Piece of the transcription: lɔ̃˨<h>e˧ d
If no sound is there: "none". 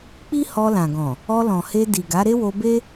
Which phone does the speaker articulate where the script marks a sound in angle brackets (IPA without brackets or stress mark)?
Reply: h